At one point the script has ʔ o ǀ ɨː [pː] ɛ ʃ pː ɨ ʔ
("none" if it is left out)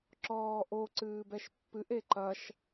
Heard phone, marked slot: b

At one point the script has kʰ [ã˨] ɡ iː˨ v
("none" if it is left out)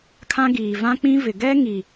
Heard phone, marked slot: ã˦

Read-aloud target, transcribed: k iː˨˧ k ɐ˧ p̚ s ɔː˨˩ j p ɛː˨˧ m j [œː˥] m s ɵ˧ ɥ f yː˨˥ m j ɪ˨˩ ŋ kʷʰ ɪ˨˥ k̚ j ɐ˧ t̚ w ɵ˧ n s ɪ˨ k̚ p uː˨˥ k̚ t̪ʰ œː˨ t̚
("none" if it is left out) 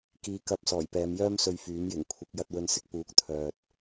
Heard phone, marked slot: œː˥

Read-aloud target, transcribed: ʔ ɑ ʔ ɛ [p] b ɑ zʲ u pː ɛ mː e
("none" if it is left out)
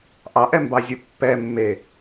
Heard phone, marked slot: m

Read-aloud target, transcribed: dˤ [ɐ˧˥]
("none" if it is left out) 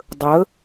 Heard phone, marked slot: ə˧˥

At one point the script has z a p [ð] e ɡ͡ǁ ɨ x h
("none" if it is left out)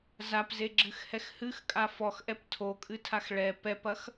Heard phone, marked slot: z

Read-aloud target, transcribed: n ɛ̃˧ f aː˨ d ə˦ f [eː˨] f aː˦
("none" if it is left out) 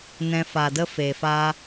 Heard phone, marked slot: eː˨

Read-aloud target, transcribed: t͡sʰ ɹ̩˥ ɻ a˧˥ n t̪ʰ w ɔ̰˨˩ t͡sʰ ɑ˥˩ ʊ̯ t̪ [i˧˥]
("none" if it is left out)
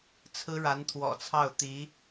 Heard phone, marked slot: i˧˥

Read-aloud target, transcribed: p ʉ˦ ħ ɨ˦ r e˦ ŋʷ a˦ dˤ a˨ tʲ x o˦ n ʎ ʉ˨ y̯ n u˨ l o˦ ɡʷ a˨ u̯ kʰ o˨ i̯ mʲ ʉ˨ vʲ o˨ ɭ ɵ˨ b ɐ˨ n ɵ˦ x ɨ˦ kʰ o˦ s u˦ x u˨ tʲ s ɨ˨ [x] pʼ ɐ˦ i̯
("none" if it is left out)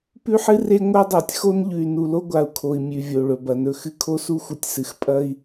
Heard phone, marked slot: x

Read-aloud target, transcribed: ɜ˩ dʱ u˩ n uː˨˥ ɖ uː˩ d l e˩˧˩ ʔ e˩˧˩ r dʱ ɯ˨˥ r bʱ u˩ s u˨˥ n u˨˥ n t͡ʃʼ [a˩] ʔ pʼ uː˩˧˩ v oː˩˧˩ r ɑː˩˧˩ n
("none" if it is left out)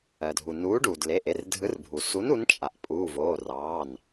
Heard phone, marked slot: a˩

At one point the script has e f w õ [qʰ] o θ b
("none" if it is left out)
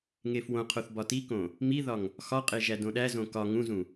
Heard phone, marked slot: qʰ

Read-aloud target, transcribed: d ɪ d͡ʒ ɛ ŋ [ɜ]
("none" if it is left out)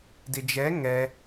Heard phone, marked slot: ɛ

